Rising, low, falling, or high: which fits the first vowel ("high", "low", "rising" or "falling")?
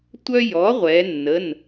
high